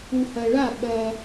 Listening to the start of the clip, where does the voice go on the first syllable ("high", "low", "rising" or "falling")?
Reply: low